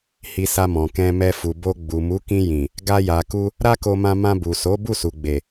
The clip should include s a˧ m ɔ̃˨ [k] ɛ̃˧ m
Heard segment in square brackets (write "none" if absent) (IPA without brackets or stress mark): k